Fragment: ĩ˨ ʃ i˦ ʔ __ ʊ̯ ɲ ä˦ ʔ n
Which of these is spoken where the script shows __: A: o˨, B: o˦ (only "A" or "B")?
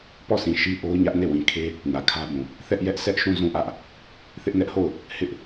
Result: B